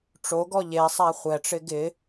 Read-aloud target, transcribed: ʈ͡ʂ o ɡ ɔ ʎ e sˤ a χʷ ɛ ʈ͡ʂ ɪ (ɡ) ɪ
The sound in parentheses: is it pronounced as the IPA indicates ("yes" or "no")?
yes